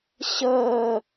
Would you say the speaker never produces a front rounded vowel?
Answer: yes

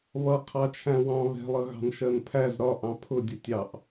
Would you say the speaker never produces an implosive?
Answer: yes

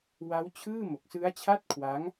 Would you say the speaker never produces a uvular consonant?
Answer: yes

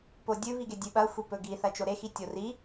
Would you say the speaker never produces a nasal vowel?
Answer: yes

